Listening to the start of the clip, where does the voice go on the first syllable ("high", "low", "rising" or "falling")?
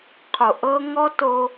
low